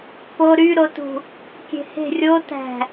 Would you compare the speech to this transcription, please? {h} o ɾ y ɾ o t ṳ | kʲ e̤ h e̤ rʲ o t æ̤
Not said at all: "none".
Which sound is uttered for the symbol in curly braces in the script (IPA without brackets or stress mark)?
p